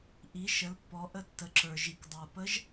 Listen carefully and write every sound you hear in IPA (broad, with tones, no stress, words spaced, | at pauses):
ʔi˩˧ ʃə˩˧lpːɔ˩˧ ʔə˧tːə˩˧ǁə˞˩ ʒi˩kdˤə˞˩pə˧˥ʒ